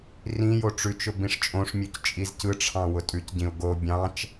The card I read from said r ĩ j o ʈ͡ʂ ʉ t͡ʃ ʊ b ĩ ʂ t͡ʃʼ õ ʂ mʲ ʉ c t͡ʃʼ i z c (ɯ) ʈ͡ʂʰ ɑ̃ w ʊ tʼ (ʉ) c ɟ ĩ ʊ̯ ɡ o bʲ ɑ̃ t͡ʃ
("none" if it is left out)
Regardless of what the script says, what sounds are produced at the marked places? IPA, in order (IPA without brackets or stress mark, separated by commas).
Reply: ɯ, ʉ